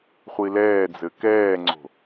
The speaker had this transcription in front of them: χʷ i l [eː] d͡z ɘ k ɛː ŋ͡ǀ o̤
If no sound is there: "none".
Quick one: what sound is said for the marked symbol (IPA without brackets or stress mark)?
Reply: ɛː